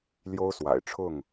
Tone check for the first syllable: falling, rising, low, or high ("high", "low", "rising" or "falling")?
high